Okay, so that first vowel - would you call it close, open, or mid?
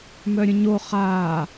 mid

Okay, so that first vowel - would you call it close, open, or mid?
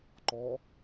mid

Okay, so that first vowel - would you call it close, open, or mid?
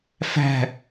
open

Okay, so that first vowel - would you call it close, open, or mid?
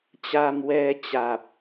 open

